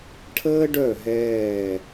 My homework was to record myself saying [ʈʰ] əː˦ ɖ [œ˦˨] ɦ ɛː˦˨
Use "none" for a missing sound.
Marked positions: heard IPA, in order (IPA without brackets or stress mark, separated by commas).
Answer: ʈʰ, œ˦˨